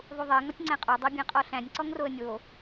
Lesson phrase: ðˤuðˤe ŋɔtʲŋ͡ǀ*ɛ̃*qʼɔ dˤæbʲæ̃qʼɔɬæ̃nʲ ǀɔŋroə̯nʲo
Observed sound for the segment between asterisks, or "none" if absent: æ̃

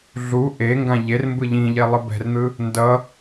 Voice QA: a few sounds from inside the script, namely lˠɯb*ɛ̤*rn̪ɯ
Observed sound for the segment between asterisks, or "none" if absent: ɛ̤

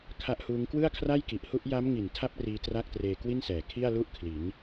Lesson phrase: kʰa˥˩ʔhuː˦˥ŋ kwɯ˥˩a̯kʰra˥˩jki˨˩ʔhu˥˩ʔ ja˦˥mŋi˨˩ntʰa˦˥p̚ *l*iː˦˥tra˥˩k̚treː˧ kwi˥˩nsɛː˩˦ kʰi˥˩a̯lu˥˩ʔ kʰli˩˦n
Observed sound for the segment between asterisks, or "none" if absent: r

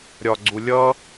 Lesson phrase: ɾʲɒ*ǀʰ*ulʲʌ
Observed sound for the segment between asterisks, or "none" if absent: ɡ͡ǀ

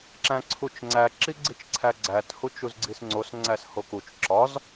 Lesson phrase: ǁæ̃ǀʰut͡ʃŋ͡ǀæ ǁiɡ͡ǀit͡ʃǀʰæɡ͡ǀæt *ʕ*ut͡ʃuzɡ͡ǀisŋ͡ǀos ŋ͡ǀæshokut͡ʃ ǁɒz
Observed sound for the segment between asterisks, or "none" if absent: h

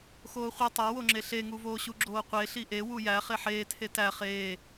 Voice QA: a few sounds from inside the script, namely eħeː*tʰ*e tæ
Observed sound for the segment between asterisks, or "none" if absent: tʰ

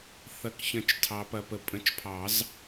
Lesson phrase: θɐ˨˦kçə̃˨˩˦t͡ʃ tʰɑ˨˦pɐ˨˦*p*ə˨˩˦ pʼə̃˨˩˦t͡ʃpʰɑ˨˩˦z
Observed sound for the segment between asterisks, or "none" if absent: p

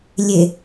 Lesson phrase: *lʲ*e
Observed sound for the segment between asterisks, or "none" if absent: lʲ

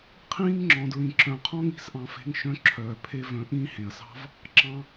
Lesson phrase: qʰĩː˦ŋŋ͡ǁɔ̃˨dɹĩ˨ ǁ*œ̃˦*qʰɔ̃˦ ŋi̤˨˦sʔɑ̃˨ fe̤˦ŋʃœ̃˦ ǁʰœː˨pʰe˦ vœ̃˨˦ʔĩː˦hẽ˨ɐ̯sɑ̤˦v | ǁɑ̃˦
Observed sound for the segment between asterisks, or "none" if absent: œ̃˨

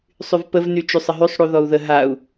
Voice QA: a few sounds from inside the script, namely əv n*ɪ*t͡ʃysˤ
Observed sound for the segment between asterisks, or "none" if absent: y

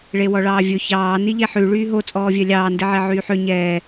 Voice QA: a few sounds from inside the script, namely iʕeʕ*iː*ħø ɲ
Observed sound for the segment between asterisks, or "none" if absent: yː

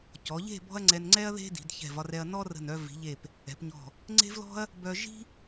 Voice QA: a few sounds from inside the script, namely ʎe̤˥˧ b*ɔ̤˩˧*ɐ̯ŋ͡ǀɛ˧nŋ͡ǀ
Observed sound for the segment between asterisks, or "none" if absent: ɔ̤˥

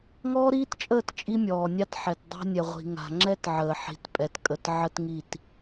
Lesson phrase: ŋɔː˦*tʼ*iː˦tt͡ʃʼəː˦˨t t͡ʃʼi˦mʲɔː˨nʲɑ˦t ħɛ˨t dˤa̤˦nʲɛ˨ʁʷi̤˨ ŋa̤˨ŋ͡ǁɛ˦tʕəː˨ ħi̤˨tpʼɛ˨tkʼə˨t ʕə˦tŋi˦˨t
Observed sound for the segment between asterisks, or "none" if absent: ɾ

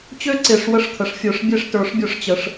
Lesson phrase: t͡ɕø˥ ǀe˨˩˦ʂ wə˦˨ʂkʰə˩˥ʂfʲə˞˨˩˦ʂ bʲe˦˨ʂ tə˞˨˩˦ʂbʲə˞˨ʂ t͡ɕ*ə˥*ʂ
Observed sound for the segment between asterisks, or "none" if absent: ə˨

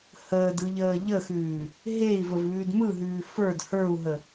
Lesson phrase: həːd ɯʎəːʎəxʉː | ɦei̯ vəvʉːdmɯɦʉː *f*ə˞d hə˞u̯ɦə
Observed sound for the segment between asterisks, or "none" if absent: f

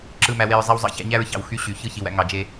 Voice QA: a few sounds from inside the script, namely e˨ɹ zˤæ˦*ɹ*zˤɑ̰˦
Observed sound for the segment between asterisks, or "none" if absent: w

